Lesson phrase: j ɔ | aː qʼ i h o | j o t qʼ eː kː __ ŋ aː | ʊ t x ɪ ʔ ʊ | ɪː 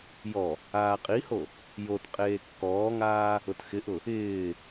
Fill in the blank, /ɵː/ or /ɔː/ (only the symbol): ɔː